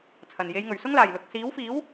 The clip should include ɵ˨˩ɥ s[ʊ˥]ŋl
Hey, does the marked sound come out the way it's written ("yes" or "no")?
yes